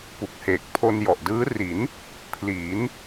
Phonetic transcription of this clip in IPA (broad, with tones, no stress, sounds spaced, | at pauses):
p u˨˩ k̚ h eː˨˩ k̚ pʰ o˧ n j ɔ˨˩ ʔ d ɯː˦˥ r i˩˦ n | pʰ l iː˩˦ n